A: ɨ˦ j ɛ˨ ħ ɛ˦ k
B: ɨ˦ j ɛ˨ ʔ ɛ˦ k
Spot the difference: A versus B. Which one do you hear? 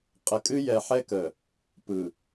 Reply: A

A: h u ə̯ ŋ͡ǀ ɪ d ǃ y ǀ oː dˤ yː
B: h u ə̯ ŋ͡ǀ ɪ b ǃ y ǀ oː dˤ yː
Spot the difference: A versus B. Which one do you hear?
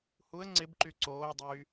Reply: B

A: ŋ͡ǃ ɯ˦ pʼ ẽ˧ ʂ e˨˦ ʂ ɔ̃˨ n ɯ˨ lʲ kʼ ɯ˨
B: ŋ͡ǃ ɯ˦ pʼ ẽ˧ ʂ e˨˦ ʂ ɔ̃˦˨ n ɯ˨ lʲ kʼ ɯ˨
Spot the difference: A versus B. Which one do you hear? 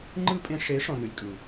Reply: A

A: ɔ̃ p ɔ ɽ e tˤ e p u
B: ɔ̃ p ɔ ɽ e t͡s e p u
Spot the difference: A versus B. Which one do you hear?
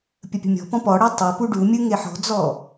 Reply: A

